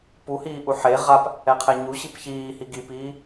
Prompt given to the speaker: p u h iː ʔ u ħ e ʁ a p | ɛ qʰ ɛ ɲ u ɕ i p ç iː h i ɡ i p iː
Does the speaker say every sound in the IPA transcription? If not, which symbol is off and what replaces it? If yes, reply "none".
none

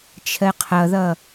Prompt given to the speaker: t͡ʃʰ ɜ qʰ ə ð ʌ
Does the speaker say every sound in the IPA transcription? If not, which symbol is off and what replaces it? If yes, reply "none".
ə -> ʌ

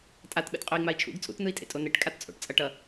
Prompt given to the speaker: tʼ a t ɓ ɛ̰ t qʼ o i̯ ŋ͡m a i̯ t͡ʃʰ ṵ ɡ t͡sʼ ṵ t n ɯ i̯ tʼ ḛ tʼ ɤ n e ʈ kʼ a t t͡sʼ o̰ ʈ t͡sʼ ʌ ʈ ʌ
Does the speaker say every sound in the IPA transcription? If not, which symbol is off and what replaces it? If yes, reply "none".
ɤ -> o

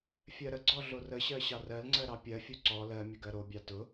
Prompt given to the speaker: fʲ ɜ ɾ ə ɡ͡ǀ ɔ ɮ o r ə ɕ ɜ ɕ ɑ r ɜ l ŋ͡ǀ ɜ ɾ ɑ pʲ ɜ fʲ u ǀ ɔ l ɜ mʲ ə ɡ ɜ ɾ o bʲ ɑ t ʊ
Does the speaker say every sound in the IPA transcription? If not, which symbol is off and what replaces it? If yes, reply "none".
none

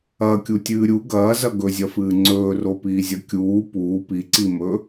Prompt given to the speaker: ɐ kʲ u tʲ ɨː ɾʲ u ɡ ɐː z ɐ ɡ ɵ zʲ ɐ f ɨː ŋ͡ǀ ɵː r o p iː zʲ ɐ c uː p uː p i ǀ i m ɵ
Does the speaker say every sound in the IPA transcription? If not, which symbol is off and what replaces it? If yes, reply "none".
c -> kʲ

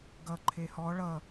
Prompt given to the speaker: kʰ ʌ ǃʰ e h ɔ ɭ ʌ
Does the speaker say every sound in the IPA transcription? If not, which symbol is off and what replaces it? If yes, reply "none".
kʰ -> ɡ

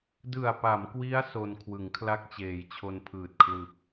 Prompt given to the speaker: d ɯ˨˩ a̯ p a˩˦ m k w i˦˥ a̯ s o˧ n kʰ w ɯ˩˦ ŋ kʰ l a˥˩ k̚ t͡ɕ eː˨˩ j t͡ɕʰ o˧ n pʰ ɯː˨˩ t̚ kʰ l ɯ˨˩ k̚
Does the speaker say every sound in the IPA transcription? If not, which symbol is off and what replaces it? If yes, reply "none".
none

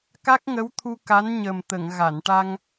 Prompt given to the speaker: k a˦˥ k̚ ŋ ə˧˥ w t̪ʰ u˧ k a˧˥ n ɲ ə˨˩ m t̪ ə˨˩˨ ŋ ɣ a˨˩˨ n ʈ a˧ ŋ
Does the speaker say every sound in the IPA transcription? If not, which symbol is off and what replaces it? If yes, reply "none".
none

